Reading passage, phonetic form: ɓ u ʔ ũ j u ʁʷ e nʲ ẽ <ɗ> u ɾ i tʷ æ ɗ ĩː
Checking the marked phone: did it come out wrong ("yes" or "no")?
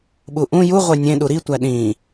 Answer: no